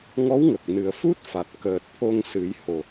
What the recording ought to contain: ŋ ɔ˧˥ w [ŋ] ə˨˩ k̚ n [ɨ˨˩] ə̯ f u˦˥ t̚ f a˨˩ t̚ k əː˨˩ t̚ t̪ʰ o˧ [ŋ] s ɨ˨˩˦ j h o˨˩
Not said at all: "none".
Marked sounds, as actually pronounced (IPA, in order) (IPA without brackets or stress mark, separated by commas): ŋ, ɨ˨˩, ŋ